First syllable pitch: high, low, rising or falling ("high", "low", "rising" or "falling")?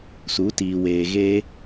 rising